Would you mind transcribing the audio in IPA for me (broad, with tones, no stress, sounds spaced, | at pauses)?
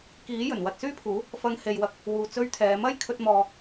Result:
k iː˨˥ j ɵ˨˩ n w ɐ˨ t̚ s yː˥ pʰ uː˨˥ | f ɐ˧ ŋ h e˨ j w ɐ˧ k̚ | w uː˨ t͡s ɵ˥ ɥ t̪ʰ ɛː˨˧ m ɐ˥ j kʰ ɵ˧ t̚ m ɔː˨